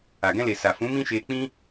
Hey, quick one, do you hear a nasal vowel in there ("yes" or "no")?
yes